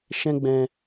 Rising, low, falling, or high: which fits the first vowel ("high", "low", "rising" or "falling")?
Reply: high